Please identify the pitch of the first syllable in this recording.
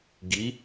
rising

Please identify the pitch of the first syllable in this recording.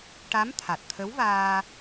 rising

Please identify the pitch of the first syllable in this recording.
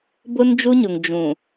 high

